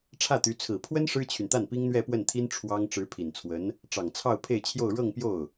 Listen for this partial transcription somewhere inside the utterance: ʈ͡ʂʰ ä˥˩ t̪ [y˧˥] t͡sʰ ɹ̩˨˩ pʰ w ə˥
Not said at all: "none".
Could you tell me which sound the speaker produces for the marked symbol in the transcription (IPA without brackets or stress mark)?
y˧˥